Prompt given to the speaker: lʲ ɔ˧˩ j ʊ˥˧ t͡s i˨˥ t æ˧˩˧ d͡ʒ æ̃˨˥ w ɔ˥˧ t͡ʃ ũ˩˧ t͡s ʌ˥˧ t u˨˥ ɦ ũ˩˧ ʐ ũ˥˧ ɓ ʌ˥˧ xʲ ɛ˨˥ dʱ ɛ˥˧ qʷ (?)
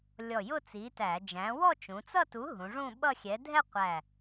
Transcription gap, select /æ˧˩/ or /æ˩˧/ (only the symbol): æ˧˩